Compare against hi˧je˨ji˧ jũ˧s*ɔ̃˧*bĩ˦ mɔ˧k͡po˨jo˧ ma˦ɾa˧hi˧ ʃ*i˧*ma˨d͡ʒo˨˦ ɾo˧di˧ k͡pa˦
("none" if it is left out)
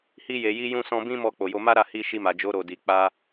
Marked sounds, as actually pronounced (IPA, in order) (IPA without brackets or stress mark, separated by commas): ɔ̃˧, i˧